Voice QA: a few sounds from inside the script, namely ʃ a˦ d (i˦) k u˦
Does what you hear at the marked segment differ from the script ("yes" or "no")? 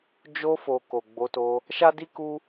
no